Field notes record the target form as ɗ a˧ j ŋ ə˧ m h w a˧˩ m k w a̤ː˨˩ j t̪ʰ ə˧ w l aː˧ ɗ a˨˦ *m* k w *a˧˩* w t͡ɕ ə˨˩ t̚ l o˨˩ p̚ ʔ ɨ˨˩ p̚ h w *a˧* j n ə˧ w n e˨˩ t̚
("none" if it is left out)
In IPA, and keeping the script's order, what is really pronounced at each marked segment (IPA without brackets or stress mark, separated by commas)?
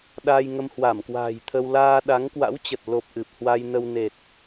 ŋ, a̰˧˥, a˧